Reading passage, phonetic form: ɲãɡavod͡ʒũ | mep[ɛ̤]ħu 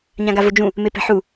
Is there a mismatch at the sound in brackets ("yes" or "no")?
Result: no